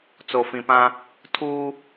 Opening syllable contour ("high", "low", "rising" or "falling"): low